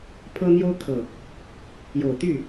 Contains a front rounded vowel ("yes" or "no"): yes